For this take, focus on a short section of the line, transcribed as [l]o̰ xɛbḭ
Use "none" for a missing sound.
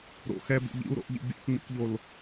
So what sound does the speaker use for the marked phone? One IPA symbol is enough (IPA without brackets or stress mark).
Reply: ɾ